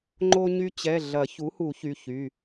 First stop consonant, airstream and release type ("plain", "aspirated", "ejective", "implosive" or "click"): click